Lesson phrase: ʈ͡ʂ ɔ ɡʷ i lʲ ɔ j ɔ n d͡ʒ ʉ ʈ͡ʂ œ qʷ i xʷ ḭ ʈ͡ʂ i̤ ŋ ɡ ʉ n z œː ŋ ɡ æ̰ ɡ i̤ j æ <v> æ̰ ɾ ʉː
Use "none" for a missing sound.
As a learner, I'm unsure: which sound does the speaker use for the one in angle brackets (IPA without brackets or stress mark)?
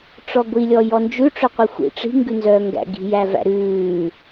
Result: v